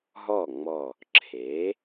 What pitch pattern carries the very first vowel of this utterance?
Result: falling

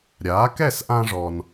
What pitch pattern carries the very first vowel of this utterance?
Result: rising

